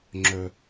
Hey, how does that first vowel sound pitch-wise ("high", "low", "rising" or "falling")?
low